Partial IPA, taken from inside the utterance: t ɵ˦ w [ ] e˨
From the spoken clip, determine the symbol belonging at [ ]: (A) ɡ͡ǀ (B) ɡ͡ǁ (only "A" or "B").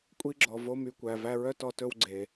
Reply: A